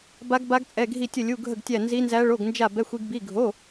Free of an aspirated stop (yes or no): yes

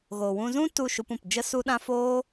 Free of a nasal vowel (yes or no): no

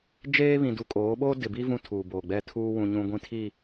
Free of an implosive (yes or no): no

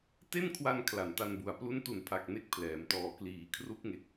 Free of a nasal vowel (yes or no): yes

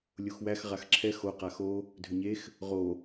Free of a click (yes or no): no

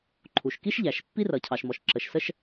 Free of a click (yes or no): no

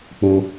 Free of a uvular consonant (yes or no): yes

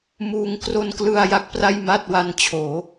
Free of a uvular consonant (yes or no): yes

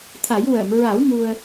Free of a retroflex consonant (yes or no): yes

